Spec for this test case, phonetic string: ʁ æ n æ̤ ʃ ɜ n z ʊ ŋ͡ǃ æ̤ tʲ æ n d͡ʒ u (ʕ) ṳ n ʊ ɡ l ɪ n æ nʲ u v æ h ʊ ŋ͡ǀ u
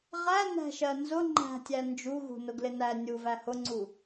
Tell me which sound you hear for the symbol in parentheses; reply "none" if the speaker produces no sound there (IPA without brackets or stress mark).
ɣ